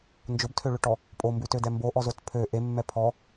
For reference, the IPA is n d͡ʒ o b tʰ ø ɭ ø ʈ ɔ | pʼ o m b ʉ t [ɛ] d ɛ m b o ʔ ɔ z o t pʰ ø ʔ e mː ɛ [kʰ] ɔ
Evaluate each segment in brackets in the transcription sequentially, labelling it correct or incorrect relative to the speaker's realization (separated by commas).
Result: incorrect, incorrect